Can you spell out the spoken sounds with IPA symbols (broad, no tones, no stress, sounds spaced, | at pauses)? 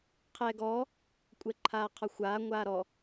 qʰ ɛː ɡ ɔː | kʷʼ ɛ ǃʰ aː qʰ ɒ xʷ aː ŋʷ aː ɾ ɔ